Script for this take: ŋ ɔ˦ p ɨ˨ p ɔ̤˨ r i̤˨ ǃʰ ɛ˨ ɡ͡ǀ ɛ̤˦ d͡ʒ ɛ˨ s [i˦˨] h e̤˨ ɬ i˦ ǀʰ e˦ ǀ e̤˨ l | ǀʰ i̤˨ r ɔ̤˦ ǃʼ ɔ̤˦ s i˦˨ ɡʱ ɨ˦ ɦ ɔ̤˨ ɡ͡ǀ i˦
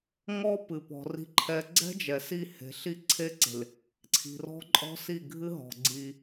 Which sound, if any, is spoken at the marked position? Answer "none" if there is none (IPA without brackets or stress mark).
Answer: i˦˨